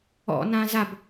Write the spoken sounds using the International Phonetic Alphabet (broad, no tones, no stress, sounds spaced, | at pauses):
ɔ̰ n ã z a b